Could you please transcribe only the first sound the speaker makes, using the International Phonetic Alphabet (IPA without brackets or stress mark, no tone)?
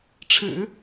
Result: ʈ͡ʂʰ